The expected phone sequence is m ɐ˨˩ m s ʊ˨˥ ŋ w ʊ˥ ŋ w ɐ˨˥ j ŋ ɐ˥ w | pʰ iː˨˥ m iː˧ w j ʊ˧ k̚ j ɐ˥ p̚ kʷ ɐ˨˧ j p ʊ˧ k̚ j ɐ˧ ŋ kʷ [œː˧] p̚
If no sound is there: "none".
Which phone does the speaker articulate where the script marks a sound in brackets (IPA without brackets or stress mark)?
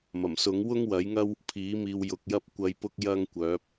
œː˨˥